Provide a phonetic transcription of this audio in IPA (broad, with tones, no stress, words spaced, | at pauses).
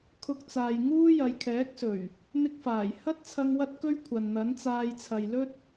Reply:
kʰʊ˧k̚t͡saː˨j ŋuː˥ jɐ˨˧jkʰɛː˨˥k̚sɵ˨˩ɥ | n̪ɪ˥k̚faː˨˩j hɐ˥t̚t͡sʰɐ˧ŋ wɐ˥t̚kɵ˥ɥ kʷʰɐ˨nn̪ɐ˨˥nt͡saː˧j t͡sʰɐ˨jlɵ˥t̚